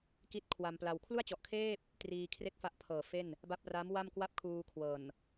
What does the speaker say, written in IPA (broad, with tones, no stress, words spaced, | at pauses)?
ki˥˩t̚kʰwa˧mpla˧w kʰlu˥˩a̯t͡ɕɔ˨˩ʔkʰeː˥˩p̚ | triː˧ kʰre˥˩k̚fa˦˥ʔpʰɤː˨˩fe˥˩n | ba˦˥p̚ra˦˥m wa˥˩mkwa˥˩p̚kʰuː˧ kʰwɤː˨˩n